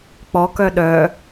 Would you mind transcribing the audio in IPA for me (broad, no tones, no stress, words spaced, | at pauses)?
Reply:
k͡pɔkœ ɗœ